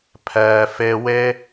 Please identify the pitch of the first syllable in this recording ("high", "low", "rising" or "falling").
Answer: low